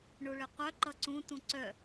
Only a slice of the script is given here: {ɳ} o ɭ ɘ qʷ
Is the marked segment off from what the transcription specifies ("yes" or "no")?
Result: no